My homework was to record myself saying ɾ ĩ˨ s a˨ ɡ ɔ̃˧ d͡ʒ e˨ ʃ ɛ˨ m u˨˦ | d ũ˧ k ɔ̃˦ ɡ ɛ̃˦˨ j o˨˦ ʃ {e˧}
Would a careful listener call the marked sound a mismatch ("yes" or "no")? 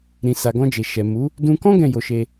no